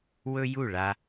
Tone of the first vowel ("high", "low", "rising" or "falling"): high